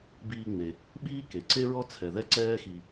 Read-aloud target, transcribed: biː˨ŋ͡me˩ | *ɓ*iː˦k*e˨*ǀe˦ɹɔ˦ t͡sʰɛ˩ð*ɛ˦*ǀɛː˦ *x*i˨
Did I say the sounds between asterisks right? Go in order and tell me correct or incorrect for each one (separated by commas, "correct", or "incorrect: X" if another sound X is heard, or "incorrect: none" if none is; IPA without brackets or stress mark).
correct, incorrect: e˩, correct, correct